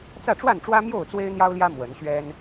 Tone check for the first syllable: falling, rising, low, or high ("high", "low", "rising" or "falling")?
falling